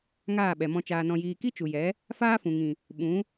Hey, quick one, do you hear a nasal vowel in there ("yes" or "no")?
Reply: yes